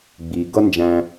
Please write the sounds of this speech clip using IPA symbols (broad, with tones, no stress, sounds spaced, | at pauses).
ɡ͡b iː˨ ɡ ʌ˦ n d͡ʒ æ̃˧